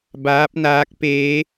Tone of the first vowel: rising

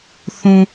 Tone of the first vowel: low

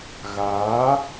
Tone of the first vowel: rising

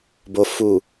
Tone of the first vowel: low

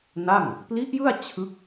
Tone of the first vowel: falling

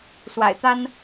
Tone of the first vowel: low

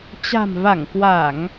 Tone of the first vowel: low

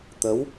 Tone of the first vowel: rising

